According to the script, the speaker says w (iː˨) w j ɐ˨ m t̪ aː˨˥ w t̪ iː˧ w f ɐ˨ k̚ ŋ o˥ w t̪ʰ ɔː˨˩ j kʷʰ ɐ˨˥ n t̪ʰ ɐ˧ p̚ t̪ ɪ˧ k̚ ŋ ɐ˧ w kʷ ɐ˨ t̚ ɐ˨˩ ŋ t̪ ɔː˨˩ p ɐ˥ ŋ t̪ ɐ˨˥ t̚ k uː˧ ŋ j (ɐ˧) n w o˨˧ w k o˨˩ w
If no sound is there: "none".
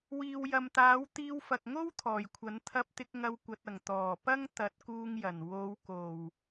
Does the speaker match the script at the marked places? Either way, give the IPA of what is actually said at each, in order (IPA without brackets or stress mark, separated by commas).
iː˨, ɐ˨˩